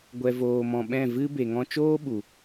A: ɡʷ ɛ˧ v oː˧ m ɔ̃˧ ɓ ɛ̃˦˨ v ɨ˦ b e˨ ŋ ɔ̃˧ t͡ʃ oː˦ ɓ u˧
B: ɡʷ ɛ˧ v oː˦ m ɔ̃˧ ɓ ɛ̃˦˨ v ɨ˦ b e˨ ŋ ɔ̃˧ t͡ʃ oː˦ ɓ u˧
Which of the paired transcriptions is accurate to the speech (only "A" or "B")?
A